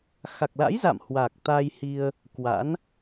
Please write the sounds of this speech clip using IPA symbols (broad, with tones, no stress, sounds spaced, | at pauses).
x a˨˩ k̚ l a̰˧˥ j z a̰˧˨ m h w aː˨˩ k̚ t̪ a˧ j h i˧ ə̯ | k w a̰˧˥ n